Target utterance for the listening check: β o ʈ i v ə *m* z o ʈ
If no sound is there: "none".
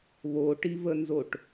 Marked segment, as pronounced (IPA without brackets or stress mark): n